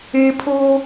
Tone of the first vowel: high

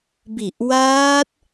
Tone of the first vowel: low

